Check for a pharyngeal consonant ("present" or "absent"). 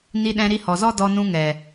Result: absent